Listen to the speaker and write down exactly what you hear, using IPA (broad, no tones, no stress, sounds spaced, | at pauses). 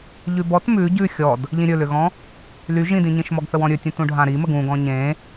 ʎ ʉ b ɔ t m ʉ ɟ ʉ xʲ ɔ d | ʎ ĩ ɾʲ ɵ l ʏ ɣ ɔ̃ | l y ʒ ĩ d ĩ ɲ ĩ ʃ m ɔ ɡ θ ə w ɔ̃ ɾʲ ɵ tʲ ũ t ũ ɖʱ ã ɾ i m ə ɡ ũ ɡ ɔ̃ ɲ ẽ